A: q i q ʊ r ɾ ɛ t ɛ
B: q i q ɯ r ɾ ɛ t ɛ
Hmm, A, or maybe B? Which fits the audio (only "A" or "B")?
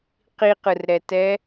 B